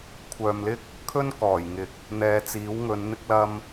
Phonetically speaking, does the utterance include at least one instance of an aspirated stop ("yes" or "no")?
yes